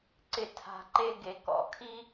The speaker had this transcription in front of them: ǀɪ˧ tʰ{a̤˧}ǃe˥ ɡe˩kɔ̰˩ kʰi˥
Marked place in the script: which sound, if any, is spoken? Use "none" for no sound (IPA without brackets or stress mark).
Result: a̤˧